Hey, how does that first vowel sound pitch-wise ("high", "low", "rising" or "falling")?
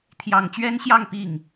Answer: low